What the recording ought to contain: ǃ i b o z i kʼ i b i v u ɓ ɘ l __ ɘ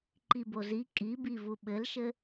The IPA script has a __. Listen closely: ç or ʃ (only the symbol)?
ʃ